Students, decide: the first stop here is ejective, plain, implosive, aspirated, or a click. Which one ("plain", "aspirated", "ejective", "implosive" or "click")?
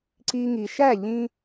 click